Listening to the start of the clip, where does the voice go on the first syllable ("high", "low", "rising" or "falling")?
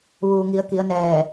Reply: low